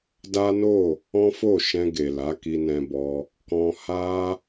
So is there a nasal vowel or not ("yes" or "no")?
yes